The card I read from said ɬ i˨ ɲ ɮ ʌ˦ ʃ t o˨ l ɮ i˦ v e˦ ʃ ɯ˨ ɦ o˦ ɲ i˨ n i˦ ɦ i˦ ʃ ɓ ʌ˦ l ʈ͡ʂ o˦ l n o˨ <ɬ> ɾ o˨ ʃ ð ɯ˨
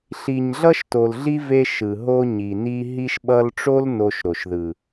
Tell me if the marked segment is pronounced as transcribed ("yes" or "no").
no